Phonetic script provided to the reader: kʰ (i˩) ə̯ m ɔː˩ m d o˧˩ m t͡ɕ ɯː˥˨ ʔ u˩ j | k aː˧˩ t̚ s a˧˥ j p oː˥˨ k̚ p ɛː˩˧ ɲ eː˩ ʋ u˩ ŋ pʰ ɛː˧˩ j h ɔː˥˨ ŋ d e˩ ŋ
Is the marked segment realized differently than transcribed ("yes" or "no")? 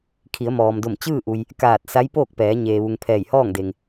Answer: yes